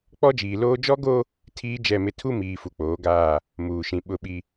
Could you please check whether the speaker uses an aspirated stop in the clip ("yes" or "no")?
yes